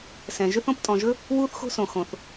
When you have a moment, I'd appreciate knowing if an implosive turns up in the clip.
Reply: no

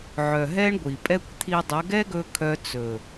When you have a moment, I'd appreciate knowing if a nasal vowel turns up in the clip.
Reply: no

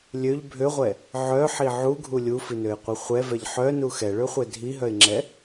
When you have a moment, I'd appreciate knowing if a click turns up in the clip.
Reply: yes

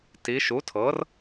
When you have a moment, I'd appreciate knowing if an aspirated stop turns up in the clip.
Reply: yes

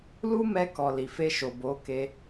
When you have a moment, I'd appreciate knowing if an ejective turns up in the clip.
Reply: no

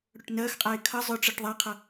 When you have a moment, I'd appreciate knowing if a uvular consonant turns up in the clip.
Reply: yes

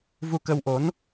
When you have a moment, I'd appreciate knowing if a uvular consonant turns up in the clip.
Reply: no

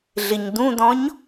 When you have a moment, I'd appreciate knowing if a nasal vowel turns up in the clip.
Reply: yes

